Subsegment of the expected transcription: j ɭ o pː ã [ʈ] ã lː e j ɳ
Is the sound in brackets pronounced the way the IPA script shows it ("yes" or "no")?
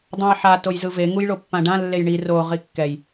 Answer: no